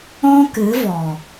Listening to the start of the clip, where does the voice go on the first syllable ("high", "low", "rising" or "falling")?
high